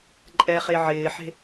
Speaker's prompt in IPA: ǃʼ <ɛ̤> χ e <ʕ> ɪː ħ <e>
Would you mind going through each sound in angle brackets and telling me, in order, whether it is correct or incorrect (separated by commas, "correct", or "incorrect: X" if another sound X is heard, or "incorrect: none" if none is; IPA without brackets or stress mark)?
incorrect: ɛ, correct, incorrect: e̤